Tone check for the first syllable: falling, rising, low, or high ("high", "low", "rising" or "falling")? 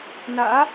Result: rising